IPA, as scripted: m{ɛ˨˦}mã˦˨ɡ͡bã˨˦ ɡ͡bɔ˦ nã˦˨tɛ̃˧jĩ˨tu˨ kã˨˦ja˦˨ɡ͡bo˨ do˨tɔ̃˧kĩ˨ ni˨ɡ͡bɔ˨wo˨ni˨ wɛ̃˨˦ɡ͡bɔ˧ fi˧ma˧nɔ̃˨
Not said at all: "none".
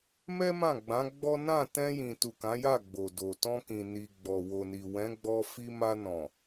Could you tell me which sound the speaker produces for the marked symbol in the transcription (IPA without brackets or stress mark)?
ɛ˦